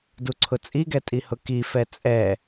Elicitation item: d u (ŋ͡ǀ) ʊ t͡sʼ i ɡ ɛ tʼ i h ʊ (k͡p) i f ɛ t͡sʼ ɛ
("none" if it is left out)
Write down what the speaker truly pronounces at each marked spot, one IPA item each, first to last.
ǀʰ, k

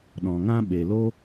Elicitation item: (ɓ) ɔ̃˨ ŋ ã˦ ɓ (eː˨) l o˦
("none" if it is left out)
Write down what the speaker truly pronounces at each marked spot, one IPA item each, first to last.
ɗ, e˨

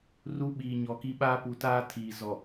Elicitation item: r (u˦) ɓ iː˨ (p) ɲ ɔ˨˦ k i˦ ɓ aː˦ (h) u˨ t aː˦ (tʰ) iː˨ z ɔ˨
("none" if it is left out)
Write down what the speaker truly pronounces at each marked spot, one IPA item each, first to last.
u˦, none, p, tʰ

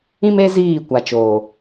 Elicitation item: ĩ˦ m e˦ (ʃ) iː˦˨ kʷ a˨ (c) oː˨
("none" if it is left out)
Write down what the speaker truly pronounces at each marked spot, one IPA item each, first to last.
z, t͡ʃ

